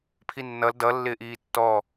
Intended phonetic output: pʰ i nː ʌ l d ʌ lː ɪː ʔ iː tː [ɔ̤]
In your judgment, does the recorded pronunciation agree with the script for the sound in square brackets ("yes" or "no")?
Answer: no